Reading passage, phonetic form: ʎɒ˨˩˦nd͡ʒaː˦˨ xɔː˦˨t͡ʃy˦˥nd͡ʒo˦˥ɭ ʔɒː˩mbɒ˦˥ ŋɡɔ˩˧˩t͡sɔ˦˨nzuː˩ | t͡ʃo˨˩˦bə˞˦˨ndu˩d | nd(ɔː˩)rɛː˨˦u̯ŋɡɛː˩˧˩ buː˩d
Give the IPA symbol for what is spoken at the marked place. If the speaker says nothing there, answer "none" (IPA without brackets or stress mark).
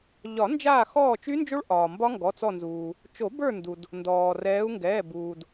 ɔː˩